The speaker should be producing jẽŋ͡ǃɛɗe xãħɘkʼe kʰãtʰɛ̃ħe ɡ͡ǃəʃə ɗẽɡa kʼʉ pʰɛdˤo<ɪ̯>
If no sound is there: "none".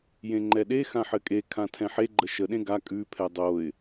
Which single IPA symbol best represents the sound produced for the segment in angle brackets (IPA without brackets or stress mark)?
ɪ̯